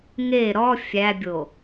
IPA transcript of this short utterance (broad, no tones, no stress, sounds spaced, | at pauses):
ŋ e ɾ ɔ fʲ æ bʲ o